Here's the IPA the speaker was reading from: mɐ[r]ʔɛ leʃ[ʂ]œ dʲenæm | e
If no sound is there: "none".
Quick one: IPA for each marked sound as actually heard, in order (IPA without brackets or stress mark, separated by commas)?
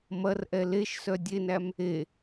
r, s